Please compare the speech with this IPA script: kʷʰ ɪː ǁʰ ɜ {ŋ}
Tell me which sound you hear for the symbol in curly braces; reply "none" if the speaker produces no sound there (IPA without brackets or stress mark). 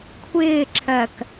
k